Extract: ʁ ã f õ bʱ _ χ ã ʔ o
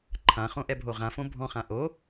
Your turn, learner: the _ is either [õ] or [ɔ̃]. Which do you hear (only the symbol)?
ɔ̃